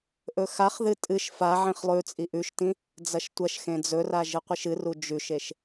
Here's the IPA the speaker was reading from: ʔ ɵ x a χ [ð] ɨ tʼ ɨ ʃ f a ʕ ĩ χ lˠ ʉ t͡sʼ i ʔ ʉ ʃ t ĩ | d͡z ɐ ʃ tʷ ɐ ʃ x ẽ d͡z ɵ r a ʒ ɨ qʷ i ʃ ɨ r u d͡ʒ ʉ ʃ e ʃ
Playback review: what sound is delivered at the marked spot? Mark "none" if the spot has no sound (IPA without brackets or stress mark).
ð